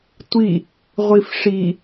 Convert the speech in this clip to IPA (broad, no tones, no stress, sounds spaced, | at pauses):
tʷ i | ʁʷ i f ʂ i